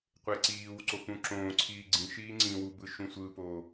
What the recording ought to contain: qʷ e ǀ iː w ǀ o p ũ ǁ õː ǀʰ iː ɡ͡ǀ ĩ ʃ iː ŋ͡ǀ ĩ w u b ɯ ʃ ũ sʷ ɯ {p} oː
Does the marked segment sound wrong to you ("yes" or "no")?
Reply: no